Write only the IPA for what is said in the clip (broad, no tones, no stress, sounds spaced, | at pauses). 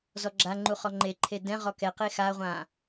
z ɔ ɡ͡ǁ a ŋ͡ǃ u χ ɔ ŋ͡ǃ e ǃʰ e d ɛ̃ ʁ ɔ k ɛ q e x a ʁʷ ã